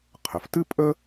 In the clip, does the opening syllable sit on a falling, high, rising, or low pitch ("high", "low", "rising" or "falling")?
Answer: low